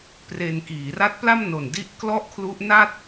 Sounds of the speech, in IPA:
p r e˧ n k iː˩˦ r a˦˥ t̚ p l a˥˩ m n o˨˩ n d i˥˩ ʔ k l ɔ˥˩ ʔ kʰ l u˦˥ ʔ n a˥˩ t̚

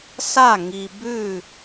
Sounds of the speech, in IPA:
s a˥˩ ŋ i˨ b ʉ˥˩

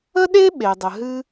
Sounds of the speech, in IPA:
ə˥ ɗ e˥ ɓ e˩ dˤ ə˩ ɦ ɨ˥

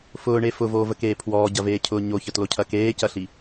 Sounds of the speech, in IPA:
f ʊː ɳ e f ʊ v oː v ə k eː pʰ w ɔː ɟ ɐ v eː cʰ ʊː ɲ o ç ə t l o cʰ ɐ k eː c ɐ ɬ i

